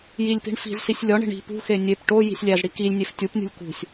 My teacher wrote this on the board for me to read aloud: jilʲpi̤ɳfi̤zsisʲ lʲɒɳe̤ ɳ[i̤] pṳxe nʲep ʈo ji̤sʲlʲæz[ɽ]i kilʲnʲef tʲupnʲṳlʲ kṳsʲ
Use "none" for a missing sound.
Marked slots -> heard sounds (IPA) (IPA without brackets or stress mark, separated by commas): i̤, ɽ